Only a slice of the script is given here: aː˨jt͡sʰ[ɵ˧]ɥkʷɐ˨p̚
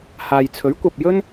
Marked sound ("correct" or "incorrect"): incorrect